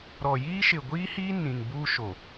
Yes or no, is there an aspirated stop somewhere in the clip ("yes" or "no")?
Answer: no